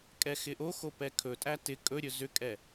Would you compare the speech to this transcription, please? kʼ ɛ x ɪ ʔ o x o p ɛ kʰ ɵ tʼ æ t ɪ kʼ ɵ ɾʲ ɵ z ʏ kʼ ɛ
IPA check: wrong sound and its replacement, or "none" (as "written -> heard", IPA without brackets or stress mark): none